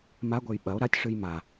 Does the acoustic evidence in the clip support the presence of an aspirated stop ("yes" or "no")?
no